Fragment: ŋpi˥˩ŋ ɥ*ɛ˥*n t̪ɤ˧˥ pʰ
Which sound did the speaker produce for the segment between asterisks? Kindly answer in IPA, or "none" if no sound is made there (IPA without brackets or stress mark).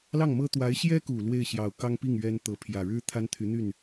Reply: ɛ˥